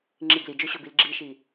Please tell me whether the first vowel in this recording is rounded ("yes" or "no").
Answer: no